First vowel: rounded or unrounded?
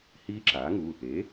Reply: unrounded